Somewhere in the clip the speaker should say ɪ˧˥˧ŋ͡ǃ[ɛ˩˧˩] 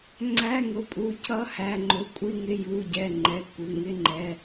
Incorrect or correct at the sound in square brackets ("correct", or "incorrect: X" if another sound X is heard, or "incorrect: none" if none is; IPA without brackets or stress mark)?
correct